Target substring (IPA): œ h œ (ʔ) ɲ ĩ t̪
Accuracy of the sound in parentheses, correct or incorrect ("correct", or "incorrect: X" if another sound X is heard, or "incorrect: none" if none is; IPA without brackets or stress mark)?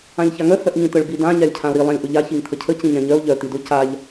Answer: correct